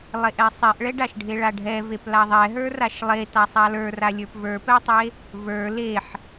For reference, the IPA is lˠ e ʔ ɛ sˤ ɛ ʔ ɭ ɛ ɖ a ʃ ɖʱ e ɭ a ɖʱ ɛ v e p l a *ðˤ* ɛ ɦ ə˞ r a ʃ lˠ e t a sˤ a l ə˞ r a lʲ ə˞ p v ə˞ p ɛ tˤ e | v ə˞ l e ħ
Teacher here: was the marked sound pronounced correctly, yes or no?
yes